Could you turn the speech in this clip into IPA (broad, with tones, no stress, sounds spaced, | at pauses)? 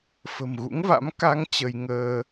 f ə̤˨˩ m ɣ ṵ˧˥ ŋ v a̰˧˥ m k a˧ ŋ t͡ɕ ə˧ j ŋ əː˧